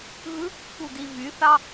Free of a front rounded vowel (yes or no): no